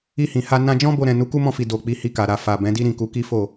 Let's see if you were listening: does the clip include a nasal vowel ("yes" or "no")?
yes